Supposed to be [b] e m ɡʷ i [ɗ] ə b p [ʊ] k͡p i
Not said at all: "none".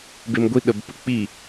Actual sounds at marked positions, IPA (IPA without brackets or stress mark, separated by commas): b, ɗ, ʊ